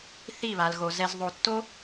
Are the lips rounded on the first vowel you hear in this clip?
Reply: no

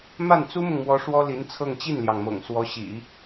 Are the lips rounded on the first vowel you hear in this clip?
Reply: no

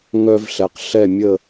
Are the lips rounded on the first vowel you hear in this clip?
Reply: yes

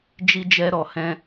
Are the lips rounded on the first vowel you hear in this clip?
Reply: no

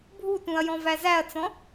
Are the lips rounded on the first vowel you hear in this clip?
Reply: yes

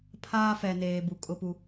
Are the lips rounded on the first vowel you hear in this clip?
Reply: no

